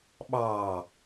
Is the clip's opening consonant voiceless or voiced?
voiced